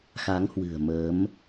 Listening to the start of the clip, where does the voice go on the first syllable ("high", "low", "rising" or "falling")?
rising